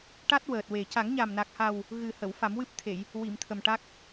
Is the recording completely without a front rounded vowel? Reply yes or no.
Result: yes